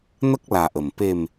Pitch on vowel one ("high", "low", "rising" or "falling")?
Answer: high